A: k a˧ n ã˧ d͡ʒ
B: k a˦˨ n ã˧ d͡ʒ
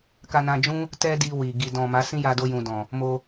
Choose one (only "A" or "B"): A